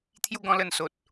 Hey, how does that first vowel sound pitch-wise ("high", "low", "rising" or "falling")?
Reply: falling